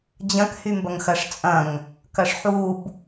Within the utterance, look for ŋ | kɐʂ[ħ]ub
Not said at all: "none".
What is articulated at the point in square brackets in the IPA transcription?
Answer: ħ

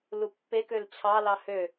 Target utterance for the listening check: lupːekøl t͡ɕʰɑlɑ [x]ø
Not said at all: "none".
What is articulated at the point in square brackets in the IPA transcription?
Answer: h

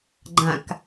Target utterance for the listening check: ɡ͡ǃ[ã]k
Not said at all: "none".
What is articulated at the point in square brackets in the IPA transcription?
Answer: ã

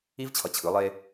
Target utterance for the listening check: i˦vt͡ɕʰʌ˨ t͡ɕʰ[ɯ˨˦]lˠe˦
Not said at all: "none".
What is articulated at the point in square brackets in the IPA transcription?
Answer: ɯ˨˦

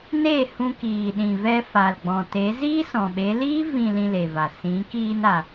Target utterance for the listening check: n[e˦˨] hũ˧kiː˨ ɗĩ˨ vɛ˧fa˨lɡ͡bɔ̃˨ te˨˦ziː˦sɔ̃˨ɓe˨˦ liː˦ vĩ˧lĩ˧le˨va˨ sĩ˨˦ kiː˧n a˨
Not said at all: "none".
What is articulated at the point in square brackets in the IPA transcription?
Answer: e˦˨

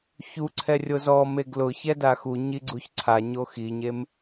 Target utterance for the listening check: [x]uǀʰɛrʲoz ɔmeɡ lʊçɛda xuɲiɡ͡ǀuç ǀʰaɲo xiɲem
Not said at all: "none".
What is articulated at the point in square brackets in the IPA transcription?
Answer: ç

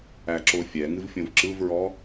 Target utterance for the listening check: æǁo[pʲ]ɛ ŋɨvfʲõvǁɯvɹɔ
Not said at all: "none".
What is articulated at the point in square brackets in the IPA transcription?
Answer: fʲ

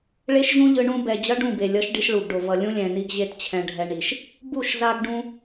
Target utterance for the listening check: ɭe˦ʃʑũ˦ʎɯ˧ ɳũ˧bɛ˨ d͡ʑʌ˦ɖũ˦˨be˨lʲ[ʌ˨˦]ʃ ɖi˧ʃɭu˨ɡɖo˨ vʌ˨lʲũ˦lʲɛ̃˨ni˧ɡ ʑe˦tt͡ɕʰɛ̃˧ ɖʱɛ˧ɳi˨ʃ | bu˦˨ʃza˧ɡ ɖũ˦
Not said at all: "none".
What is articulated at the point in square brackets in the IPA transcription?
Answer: ʌ˨˦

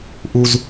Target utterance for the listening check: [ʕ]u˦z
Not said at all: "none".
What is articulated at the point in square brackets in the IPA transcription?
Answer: ʔ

